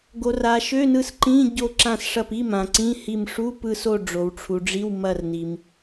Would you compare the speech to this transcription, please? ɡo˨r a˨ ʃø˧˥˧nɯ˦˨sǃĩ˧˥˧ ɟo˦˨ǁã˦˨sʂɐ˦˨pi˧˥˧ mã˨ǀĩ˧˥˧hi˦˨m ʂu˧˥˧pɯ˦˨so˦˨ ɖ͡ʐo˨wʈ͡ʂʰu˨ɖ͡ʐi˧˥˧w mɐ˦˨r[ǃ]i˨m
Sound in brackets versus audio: incorrect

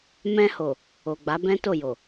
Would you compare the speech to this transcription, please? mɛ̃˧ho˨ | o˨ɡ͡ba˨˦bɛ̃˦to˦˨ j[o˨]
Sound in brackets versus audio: correct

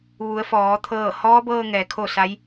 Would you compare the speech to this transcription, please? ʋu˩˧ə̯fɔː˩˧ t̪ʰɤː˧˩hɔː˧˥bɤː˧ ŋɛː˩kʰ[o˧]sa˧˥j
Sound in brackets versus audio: incorrect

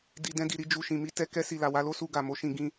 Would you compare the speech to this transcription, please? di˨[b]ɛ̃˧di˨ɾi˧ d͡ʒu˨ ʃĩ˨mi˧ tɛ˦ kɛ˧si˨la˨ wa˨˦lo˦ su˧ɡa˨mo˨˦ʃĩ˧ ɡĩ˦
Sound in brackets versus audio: incorrect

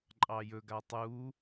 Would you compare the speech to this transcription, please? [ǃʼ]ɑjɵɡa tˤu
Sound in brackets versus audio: correct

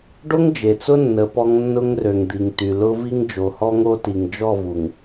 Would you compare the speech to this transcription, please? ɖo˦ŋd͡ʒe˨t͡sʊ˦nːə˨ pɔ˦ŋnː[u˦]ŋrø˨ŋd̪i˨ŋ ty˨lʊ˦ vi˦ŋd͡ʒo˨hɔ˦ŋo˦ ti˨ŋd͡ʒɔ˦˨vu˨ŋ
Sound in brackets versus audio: incorrect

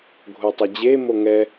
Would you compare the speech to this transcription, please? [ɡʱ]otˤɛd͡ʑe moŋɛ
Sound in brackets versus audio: correct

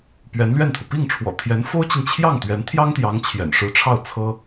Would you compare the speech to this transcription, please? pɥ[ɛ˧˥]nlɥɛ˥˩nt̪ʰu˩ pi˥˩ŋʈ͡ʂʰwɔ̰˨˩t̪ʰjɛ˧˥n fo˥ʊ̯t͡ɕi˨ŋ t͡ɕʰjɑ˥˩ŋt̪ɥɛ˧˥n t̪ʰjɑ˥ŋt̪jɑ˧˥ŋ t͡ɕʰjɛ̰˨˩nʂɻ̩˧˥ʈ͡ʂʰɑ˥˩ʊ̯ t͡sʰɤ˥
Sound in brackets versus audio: correct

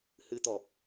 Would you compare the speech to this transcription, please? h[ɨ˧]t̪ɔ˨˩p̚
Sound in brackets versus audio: correct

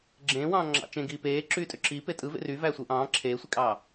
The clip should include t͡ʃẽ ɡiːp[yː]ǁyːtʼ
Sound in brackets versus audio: incorrect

